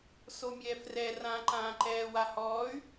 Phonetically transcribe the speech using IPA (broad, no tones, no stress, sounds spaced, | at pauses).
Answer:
s o mʲ ɛː f r ɛ r ã ǃ ãː ǃ ɛː w a h ɔː y̯